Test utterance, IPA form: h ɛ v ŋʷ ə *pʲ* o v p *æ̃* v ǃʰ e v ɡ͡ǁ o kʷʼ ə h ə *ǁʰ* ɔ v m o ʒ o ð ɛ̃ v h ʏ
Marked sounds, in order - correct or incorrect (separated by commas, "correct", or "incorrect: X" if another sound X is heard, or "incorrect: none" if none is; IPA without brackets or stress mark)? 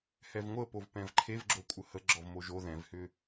incorrect: p, incorrect: ɛ̃, incorrect: ɡ͡ǁ